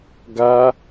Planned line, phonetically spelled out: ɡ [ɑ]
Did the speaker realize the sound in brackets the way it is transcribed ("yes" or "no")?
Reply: no